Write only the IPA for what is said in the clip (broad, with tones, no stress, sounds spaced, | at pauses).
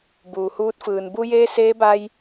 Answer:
b uː˩ h uː˧˥ t̚ f ɯː˩ n b u˧ j eː˧ s eː˧˥ b a˧ j